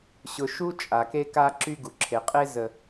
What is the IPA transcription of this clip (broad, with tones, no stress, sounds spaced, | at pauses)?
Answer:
ɕ ʊ˨ ʃ u˦ t͡ʃʼ a˨ k e˦ k a˦ ǁ y˦ ɡ u˨ ǁʰ e˨ qʼ e˦ z ə˨